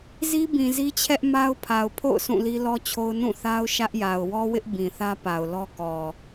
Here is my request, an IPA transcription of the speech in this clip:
z i˦ b ĩ˨ z i˦ t͡ɕʰ ɛ˦ ʔ m a˦ ʊ̯ pʰ a˨ ʊ̯ pʰ o̰˦˨ ʊ̯ s ũ˦˨ l i˦ l ɔ˦ t͡ɕʰ o˦ ʊ̯ n ũ˦˨ θ a˦ ʊ̯ ʃ ä˦ ʔ j a˨ ʊ̯ w ɔ˦ w ɪ˦ ʔ b ĩ˨ θ ä˦ p a˨ ʊ̯ l ɔ˦ k ɔ˨

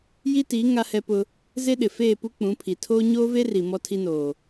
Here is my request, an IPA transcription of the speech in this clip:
j i˦ t iː˨˦ ŋ a˦ h ɛ˦ p ʊ˦ | z e˦ ɗ ɪ˨ f eː˦˨ p u˦ k͡p ũ˨˦ pʰ i˨ tʰ oː˦ ɲ oː˦ v e˦ r i˨ m ɔ˦ tʰ i˦ n oː˨

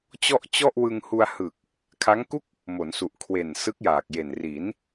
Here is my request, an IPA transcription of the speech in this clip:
t͡ɕ ɔ˥˩ ʔ t͡ɕ ɔ˥˩ ʔ w ɯ˧ ŋ h u˧ a̯ h ɯ˨˩ k̚ | kʰ a˦˥ ŋ k u˥˩ k̚ | m o˩˦ n s u˨˩ ʔ kʰ w e˨˩ n s ɯ˦˥ k̚ j aː˨˩ k̚ j e˨˩ n r i˩˦ n

